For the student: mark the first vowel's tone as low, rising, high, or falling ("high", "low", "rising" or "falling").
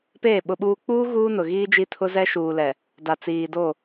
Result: falling